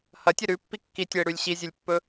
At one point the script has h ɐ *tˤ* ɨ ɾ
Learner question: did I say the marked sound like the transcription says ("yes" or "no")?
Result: no